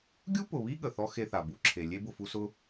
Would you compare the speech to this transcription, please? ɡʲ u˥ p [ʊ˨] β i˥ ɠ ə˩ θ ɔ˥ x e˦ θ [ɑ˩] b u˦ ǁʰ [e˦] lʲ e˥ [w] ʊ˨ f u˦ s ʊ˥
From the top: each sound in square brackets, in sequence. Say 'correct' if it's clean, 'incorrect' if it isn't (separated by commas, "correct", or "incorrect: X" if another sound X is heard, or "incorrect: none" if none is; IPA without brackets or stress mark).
correct, incorrect: a˩, incorrect: e˨, incorrect: b